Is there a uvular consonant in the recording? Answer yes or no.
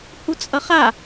yes